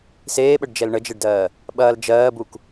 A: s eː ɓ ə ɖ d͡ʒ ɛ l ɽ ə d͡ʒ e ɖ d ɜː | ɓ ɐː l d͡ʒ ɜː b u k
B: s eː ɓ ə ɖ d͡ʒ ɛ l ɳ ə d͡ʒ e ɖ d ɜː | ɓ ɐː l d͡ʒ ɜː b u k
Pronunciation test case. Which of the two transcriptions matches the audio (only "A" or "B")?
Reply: B